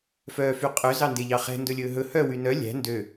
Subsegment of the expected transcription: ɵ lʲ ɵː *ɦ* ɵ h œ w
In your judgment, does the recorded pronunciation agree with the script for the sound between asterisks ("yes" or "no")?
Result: yes